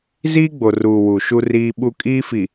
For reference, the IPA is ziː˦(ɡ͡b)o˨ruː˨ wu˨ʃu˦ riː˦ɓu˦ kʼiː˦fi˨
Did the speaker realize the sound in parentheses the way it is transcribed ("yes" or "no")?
yes